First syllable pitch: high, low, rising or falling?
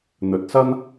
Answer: low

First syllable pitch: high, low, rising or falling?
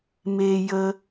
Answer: high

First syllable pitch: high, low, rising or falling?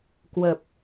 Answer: low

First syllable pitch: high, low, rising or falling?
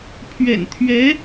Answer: low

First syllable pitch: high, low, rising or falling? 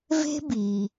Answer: high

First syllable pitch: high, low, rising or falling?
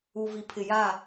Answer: low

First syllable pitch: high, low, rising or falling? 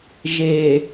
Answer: low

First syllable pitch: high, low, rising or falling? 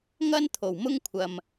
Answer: high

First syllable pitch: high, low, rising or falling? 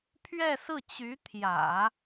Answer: falling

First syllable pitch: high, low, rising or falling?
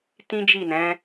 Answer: high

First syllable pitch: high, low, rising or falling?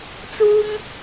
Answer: high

